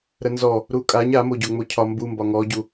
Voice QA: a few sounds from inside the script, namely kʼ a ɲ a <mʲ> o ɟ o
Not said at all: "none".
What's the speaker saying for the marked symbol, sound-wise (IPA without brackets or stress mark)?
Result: m